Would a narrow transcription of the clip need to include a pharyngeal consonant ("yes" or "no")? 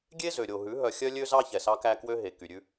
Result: no